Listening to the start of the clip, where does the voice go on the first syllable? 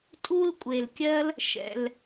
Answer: high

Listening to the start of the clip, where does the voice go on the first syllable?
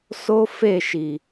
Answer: high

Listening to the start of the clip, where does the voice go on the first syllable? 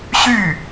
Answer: falling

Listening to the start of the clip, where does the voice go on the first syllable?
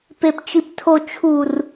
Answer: low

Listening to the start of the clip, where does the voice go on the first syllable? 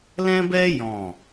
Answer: high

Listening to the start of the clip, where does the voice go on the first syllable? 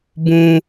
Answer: high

